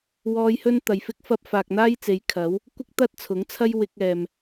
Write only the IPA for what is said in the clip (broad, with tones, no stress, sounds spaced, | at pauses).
w ɔː˧ j h ɵ˥ n t̪ ɐ˨ j f ɪ˥ k̚ f ɐ˥ p̚ f aː˨ k̚ n̪ aː˥ j t͡s e˨˧ j kʰ ɐ˨˥ w | kʷ ɪ˥ k̚ t̪ ɐ˥ t̚ t͡sʰ ʊ˨˥ ŋ t͡sʰ ɐ˥ j w ɪ˧ k̚ ɛː˨ m